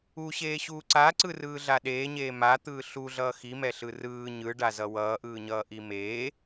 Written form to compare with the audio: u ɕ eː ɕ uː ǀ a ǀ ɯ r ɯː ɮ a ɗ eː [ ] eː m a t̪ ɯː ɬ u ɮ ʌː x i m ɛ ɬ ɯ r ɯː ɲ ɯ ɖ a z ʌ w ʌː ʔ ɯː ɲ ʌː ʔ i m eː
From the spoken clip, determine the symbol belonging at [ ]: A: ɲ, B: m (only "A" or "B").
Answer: A